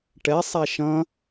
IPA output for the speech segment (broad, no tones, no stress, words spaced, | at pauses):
ʈɛ sˤaʃɐ̃